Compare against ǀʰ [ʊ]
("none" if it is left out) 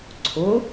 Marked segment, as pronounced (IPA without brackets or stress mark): ʊ